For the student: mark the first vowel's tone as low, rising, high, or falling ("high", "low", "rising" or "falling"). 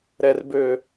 low